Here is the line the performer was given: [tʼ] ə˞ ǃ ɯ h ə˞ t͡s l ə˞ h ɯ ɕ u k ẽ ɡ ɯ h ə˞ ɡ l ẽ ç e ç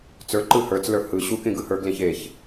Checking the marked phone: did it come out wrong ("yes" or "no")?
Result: yes